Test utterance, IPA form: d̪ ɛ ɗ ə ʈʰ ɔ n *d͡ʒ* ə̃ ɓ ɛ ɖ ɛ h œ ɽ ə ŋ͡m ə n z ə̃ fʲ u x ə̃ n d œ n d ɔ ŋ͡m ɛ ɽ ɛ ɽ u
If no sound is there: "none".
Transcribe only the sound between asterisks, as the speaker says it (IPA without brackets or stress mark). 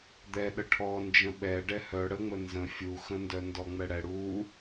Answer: d͡ʒ